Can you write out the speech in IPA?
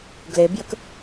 ɡ l e b j ə k

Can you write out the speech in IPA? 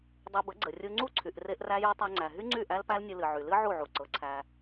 dˤ e˧ b ə˨˦ ɡ͡ǀ ə˨ rʲ u˧ ŋ͡ǀ u˦˨ ǀʰ y˨ ʔ r e˦ ʔ r æ˦ j ɤ˦ tˤ æ˧ ŋ͡ǀ æ˨ ɦ y˦ ŋ͡ǀ y˦˨ ʔ æ˦ l p æ˦ l nʲ ɨ˧ l ɨ˨ ʕ y˨ l ɨ˦ ʕ u˦˨ ʕ u˨ ǀ ɤ˨˦ ǀʰ æ˧

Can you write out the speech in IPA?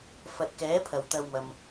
f ɐ˨ t̚ k ɛː˨˥ pʰ ɐ˨˩ w t̪ ɐ˧ w m ɐ˨ m

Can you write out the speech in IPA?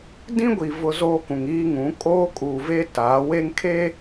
d ĩ˦ ɡʷ i˨ v ʊ˦ z oː˦ k ũ˨ ŋ iː˦ ŋ ũ˨˦ kʼ oː˦ kʼ uː˨ v e˦ t aː˨˦ w e˦ ŋ kʰ e˦

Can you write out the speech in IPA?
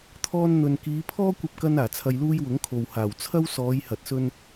t̪ʰ ɔː˧ n n̪ ɵ˨ n k iː˨˧ pʰ ɔː˥ kʷ ɐ˧ p̚ k ɐ˧ n aː˨˩ t͡sʰ ɐ˧ j l uː˥ j w ʊ˨˥ ŋ kʰ o˨ w h aː˨˩ w t͡sʰ ɐ˥ w s ɔː˨˧ j h ɐ˨ t̚ s ɵ˥ n

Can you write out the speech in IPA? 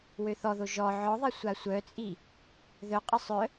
w ø θ ɔ ð o ʒ ɔ ʕ ɔ ðˤ e sʷ a sʷ œ t͡sʼ i | ð œ qʼ ə sˤ œ

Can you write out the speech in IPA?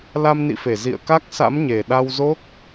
l a˧ m n ḭ˧˨ f e˧˩ z ḭ˧˨ ə̯ k a˦˥ k̚ s a̰˧˥ m ɲ e˨˩ ɗ a˧ w z o˦˥ k̚

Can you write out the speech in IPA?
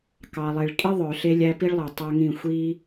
k ɑ˨ lˠ e˨ ɭ kʼ i˦ ðˤ œ˨ ɬ e˦ lʲ æ˦ p i˦ ɭ lˠ ɤ˨ tˤ a˦ ŋ ĩ˦˨ xʷ i˦

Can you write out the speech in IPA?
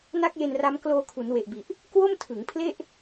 n a˥˩ k̚ j e˧ n r a˦˥ m k l oː˧ kʰ u˩˦ n w e˨˩ ʔ b i˨˩ ʔ | k w o˥˩ m tʰ ɯ˩˦ ŋ pʰ l e˥˩ ʔ

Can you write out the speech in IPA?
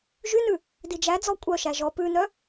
ʒ y n ʉ | d i d͡ʒ æ d͡z ɔ kʷʼ œ ʃ æ ʒ ɔ p ʉ n œ

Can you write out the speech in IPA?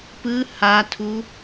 p ɯ h a tʰ u

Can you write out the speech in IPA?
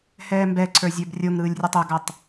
h ɛː m b ɛ ǀʰ ə˞ zʲ ə˞ b rʲ o ŋ ɾ ɯː lʲ rʲ o tˤ ø ɡ a tˤ

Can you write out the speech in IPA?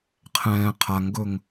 qʰ ɛ̃ː qʰ a ŋ ɡ ɵ ŋ

